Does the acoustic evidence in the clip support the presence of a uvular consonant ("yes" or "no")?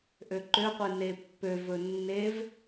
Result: yes